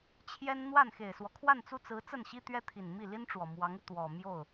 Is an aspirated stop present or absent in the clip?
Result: present